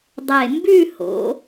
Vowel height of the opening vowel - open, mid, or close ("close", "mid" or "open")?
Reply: mid